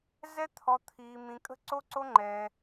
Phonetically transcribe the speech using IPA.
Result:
z ɛ˦ t̪ʰ ɔ˧ t̪ʰ iː˧ m ĩ˧ kʼ ə̤˦ ǀ o˦ ǀ o˦ ŋ͡ǃ ɛ˧

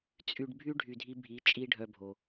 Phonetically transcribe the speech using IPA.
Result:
t͡sʼ y˧ ɖ bʱ y˦ ɖʱ y˧ dʱ i˦ bʱ i˨˦ t͡ʃʼ i˦ ɖʱ œ˧ bʱ o˨

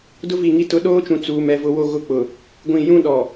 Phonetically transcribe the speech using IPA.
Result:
d ʊ˦ v i˨ ŋ i˦ t ʊ˦ ɗ oː˦ t͡ʃ ũ˨ t͡s uː˨ m ɛ˨ v ʊ˦ w o˦ ɣ ʊ˦ k͡p ʊ˨ | ɡʷ ĩ˨ j ũ˦ ɗ ɔ˨

